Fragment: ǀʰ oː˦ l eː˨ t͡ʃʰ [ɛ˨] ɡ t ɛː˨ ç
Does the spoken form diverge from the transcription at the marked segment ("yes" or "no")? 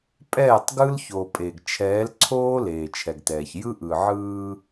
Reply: no